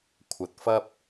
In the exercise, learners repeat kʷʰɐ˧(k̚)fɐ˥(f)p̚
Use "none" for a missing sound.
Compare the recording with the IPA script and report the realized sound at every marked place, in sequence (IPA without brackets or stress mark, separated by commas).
t̚, none